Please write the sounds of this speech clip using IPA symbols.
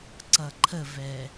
ǀʌǃʰəvɛ

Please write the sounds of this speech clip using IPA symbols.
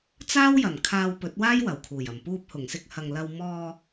t͡saː˥wjɐ˨˩n kʰaː˧wpɵ˨˥t̚waː˥j wɐ˨˩wkʰuː˨˩jɐ˨˩m puː˧p̚hʊ˨˩ŋsɪ˧k̚ hɐ˨ŋlɐ˧w mɔː˧

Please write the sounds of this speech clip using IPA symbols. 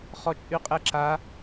χɔt͡ʃʼyqʼɛǁa

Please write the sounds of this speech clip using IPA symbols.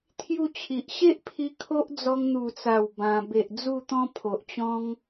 t̪ʰju˥˧t͡ɕʰi˨ʔ ɕe˦ʔpʰi˧ kʰo˦ʔd͡zɔ˧ŋ n̪u˨˩t͡sa˨˩w bã˧ be˨ʔd͡zu˥˧t̪ɔ̃˦ pʰo˨ʔt͡ɕɔ̃˦ŋ

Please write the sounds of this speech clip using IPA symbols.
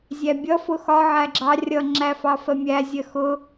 zʲæbʲʌ fʊxɒ ʕæɡ͡ǁɑ rʲʌ ŋ͡ǁæfɑfɜmʲæ zʲɜxʊ

